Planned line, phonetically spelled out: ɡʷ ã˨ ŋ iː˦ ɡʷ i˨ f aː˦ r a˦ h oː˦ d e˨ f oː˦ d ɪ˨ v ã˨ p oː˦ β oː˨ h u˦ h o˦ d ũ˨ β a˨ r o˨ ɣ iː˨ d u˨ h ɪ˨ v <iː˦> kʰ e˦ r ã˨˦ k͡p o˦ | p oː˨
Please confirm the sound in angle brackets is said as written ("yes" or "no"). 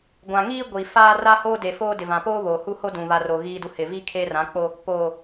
no